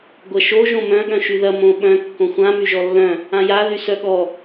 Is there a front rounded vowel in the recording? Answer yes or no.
yes